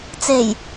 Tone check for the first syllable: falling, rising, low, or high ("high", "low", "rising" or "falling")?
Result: low